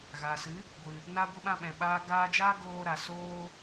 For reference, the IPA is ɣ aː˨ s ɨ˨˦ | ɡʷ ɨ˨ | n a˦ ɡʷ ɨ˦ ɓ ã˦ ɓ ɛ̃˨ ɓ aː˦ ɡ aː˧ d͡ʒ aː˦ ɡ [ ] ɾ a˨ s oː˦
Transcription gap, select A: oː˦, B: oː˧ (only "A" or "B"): B